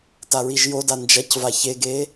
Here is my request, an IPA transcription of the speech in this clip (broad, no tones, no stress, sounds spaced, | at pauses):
t a ɹ i ʒ j o d a n d͡ʒ ɐ c v a ç e ɡ e